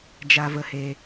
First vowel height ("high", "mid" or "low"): low